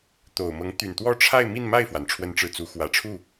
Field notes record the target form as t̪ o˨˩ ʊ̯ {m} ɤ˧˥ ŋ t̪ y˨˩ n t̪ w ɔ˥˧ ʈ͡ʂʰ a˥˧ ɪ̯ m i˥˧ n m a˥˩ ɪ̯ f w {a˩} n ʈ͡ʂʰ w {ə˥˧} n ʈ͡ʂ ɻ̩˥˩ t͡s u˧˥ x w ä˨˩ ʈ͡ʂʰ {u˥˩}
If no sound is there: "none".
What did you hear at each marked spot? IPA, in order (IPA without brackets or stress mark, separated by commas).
m, a˩, ə˥˧, u˥˩